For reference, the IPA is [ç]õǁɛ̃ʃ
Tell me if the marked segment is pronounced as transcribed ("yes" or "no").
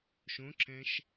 no